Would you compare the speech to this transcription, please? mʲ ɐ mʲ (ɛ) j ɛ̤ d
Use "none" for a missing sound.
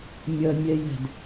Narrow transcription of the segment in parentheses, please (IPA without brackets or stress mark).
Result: ɛ